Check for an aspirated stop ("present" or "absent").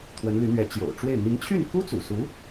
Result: present